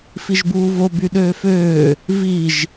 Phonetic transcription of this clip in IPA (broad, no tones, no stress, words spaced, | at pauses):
fiʒbuːvo byɗøːføː | viʒ